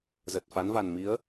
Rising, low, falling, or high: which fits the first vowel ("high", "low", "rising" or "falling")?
low